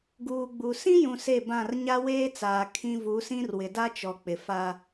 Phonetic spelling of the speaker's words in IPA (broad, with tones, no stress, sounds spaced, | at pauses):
ɡ uː˨ ɡ͡b u˨ s ĩ˦ j ũ˨ s e˦˨ b ã˦˨ r ɲ a˦ w eː˦ t͡s aː˨ kʰ ĩ˦ v u˨˦ s ĩ˦ r w ɪ˨ d a˦ t͡ʃ ɔ˨ k͡p ɪ˨ f a˦